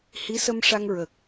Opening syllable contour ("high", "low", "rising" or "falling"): rising